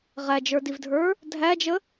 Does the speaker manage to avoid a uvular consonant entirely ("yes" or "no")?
no